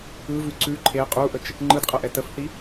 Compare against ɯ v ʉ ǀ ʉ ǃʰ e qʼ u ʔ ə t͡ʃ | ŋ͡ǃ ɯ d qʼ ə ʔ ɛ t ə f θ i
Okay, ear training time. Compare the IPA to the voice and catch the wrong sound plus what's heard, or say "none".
none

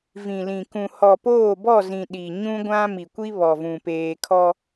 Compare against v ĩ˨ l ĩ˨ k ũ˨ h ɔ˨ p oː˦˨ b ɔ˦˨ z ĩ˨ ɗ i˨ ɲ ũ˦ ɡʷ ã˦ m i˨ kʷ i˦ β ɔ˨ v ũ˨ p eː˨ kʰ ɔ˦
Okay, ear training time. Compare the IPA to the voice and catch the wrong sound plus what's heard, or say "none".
none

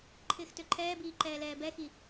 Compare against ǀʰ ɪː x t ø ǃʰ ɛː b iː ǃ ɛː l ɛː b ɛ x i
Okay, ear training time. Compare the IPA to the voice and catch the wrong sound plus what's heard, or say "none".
ǀʰ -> ǃʰ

